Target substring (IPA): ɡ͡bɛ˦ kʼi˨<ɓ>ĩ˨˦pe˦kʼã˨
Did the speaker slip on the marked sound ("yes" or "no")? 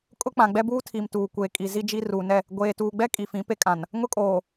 yes